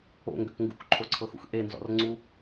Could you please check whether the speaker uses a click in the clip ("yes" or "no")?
yes